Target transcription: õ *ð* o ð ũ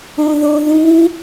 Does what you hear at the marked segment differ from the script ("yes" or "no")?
no